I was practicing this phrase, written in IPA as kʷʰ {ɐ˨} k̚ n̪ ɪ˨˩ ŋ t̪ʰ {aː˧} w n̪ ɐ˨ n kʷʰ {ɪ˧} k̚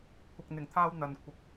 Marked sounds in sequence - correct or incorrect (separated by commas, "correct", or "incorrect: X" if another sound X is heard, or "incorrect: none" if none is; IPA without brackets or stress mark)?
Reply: correct, correct, incorrect: ɪ˨˥